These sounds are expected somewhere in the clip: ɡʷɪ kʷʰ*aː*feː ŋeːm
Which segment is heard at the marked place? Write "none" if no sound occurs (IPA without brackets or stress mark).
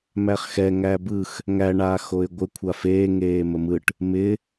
a